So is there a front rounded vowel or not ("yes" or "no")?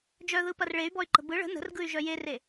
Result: yes